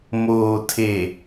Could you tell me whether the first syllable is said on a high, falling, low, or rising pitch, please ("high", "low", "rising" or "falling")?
low